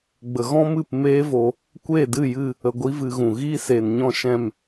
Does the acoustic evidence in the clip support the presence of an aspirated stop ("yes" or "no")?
no